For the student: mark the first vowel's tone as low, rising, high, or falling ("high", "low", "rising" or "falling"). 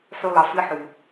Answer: low